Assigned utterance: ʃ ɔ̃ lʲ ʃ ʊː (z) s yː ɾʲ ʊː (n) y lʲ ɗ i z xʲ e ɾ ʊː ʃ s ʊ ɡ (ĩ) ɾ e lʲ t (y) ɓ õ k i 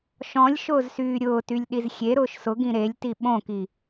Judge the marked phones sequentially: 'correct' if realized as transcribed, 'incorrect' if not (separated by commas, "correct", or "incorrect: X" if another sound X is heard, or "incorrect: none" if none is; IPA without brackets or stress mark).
correct, incorrect: t, correct, incorrect: i